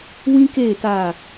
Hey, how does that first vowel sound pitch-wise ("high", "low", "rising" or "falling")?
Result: high